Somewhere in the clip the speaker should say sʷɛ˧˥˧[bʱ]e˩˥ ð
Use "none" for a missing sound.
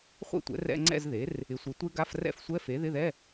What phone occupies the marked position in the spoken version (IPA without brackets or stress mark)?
f